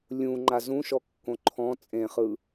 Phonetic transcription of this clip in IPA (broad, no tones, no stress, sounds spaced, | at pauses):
lʲ ũ ŋ͡ǃ a z ũ ʃ ɔ kː õ ǃʰ ɔ̃ t͡sʼ ẽ χ ɯ